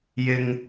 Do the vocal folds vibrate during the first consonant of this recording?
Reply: yes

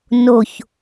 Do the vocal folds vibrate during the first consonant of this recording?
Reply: yes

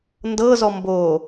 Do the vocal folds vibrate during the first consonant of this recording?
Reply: yes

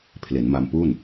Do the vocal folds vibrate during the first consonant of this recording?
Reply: no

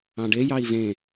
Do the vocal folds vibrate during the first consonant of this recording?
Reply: yes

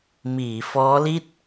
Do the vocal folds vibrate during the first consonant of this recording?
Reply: yes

